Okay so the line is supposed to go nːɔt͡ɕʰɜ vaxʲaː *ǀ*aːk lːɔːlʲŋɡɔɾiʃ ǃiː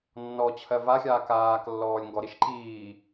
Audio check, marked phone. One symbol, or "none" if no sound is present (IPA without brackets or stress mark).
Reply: k